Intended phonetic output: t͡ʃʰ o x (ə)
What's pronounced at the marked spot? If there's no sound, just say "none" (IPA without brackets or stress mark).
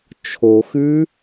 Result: ʉ